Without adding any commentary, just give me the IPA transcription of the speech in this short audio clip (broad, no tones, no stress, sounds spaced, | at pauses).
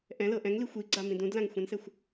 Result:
ʔ ɛ̃ l ɤ ʔ ɛ̃ ŋ l i xʷ i ɡ͡ǀ a m ĩ d ũ d l ã ŋ xʷ ɛ̃ n s ɛ xʷ